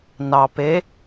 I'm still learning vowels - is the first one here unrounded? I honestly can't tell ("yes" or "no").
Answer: yes